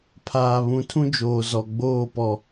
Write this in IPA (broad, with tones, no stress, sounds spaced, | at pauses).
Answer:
pʰ aː˨ β ũ˨ tʰ ũ˦ d͡ʒ oː˨ z ɔ˨ ɡ͡b oː˦˨ p ɔ˨